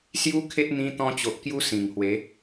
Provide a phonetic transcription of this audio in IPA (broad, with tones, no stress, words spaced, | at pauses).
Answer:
sju˦kʰe˦t̚ n̪ĩ˧ t̪ɔ̃˧t͡ɕo˨ʔ kju˧ sĩ˨˩ŋhwe˨˦